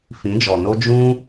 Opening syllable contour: rising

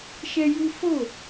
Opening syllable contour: high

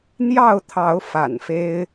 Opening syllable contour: falling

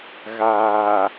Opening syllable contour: low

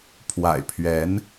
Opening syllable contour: low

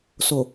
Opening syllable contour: low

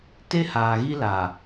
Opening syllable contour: high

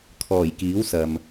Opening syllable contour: low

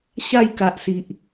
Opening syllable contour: falling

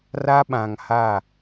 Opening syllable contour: high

